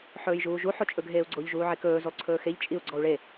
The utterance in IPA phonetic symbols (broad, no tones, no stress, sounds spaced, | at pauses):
ħ ɵː j ʒ uː ʒ u ħ o t͡ʃʼ ɵ ɡʱ eː u̯ ɡ͡ǀ o ʎ ʒ uː ʕ e k ɵː z u lˠ ǀʰ ɵː x e ʎ t͡ʃʼ i u̯ ɡ͡ǀ ɔ u̯ ɭ e